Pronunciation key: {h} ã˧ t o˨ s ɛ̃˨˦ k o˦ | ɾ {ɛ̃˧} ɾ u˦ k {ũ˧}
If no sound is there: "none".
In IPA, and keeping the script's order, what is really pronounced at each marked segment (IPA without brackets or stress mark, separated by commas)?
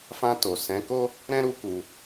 f, ɛ̃˦, u˧